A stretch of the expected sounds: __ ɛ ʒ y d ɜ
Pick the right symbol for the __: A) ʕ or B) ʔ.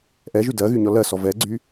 B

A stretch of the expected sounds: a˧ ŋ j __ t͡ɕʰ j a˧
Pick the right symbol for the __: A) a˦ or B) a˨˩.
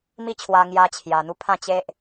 A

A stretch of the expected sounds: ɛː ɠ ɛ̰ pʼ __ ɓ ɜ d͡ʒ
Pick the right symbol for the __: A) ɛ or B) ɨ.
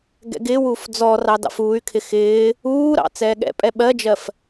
A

